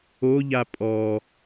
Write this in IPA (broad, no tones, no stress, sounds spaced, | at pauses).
o ʎ a pʼ ɔ